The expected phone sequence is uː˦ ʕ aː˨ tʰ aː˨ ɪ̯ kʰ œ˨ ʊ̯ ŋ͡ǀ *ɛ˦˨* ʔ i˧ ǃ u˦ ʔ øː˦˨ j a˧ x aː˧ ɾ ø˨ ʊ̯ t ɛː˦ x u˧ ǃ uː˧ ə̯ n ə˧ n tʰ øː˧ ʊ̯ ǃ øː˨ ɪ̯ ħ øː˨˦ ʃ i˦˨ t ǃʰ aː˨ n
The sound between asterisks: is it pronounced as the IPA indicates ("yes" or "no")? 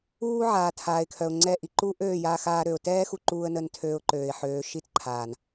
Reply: yes